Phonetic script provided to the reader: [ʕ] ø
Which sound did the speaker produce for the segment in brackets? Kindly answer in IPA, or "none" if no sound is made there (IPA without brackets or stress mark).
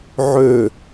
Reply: ʕ